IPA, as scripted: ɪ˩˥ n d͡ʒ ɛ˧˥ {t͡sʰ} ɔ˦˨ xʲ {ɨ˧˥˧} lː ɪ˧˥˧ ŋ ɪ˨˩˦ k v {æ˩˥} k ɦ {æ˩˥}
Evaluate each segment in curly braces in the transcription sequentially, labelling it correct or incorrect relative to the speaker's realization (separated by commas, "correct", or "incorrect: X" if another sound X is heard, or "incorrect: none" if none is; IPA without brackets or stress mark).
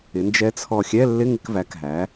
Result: correct, incorrect: ɛ˧˥˧, correct, correct